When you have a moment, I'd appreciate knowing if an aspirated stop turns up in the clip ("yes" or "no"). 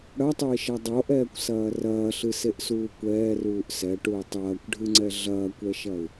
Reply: no